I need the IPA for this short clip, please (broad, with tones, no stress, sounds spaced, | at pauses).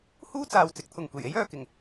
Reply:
h uː˥ t͡s aː˨ w t͡s ɪ˨˥ k̚ t̪ʰ ʊ˨ ŋ kʷ e˨˩ j e˥ j œː˨ k ɪ˨˩ ŋ